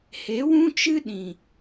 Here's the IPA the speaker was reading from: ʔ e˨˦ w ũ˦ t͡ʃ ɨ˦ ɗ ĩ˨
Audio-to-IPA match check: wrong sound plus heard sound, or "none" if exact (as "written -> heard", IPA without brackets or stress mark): ʔ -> h